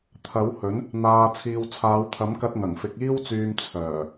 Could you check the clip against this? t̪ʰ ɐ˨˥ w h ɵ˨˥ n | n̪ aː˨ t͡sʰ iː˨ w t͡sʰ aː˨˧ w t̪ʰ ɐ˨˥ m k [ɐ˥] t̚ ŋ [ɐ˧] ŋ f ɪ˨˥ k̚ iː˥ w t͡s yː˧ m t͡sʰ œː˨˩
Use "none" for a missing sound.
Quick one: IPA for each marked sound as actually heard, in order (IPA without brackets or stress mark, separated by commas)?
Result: ɐ˧, ɐ˨˩